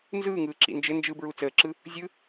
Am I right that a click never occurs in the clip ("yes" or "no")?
no